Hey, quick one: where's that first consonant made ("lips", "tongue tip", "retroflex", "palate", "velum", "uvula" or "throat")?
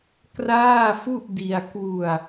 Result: velum